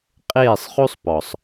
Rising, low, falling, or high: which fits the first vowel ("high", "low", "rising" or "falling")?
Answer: falling